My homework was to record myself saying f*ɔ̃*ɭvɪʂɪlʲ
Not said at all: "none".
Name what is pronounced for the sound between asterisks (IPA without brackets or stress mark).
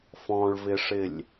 ɔ̃